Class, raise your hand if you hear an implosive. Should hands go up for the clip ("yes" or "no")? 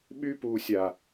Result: yes